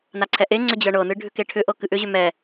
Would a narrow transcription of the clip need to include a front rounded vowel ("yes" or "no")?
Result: yes